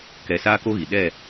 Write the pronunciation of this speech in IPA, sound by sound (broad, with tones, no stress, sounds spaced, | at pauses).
k ɛ˧ s aː˦ k o˦ ɣ i˨ ɗ ɛ˦˨